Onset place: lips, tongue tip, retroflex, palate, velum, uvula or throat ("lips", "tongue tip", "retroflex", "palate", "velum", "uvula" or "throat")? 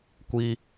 velum